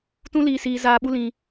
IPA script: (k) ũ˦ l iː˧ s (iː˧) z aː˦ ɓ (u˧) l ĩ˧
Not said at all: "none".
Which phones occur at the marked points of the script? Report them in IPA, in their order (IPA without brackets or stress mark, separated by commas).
t, iː˦, u˦